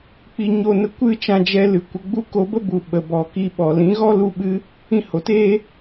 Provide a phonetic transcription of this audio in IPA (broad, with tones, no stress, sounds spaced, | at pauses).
k͡p i˧ ɲ o˧ n ə˧ kʷ ɨ˦ t͡ʃ ã˧ d͡ʒ ɛ˧ l ɨ˨ kʷ ə˧ ɡ͡b u˦ k o˧ b ə˦ b u˨ ɓ ə˨ b ɔ˨ k i˧ ɓ ɔ˨ l ĩ˨˦ ɣ ɔ˦ l u˧ ɓ ɨ˧ | ĩ˧ h o˨ t eː˦